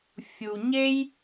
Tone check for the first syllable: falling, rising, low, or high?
low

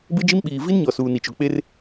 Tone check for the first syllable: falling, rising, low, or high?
high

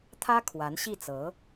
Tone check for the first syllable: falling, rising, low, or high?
high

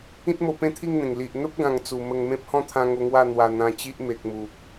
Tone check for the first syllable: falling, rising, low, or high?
high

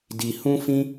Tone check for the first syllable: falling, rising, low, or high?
low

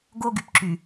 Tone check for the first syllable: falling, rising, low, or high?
high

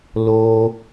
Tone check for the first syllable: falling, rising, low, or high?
low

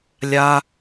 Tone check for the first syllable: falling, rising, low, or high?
high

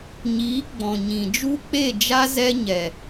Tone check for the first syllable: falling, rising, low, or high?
rising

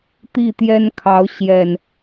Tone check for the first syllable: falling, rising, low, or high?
falling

